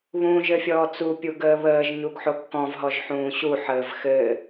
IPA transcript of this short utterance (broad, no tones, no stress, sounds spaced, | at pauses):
β ũː ʒ ɘ fʲ ɔː t͡s u pʲ u ɡ əː β əː ʒ ɲ u ɡ ħ o kː ɔ̃ v ɦ ɔ ʒ ħ ũː ɕ u ħ əː v x ɘ